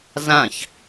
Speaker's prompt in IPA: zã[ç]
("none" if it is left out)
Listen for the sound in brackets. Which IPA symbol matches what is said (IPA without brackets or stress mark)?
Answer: ç